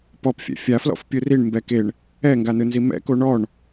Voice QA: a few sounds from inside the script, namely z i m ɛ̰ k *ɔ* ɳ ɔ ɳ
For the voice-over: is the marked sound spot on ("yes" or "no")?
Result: no